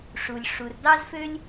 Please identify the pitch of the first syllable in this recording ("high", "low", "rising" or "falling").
low